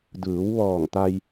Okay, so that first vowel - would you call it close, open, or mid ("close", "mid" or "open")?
close